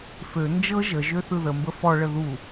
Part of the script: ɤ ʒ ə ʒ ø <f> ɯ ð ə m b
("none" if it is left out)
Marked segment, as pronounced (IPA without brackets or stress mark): θ